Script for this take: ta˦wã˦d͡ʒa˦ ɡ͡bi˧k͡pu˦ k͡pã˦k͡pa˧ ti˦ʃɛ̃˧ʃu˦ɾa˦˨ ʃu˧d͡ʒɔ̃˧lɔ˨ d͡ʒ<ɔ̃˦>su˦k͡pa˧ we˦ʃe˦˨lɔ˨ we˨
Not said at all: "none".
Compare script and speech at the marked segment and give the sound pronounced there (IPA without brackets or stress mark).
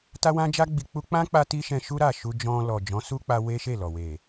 ɔ̃˨˦